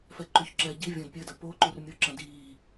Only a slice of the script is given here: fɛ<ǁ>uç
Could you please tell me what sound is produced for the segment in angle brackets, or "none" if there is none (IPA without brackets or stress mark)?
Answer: ǃ